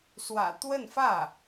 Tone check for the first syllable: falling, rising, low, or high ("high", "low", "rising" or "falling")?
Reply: low